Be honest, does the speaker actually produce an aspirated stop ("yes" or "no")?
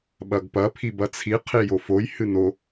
yes